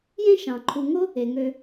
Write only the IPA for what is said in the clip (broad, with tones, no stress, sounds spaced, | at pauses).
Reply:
j ẽ˥ ʃ ɑ̃˩ ǃʰ u˨ ŋ o˥ | e˩ ŋ ø˨